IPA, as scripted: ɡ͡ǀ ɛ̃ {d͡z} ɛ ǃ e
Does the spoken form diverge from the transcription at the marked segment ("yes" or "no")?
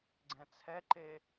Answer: yes